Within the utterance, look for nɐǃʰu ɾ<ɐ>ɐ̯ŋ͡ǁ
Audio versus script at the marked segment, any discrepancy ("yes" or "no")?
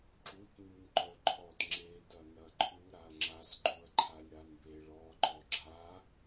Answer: yes